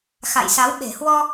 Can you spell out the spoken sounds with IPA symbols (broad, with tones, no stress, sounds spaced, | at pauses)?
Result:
x a̰˧˨ j s a˨˦ w ɓ e̤˨˩ h w ɔ˧